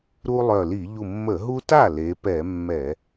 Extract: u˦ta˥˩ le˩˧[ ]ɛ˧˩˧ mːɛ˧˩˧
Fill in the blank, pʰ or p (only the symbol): p